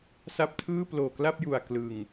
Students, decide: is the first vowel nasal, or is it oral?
oral